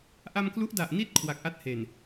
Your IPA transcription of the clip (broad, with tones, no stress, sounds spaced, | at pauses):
ʔ a˧ m k l u˦˥ ʔ d a˨˩ ʔ n i˦˥ t̚ kʰ w a˨˩ k̚ ʔ a˥˩ t̚ h e˨˩ n